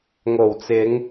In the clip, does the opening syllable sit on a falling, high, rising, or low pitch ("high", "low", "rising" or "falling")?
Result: low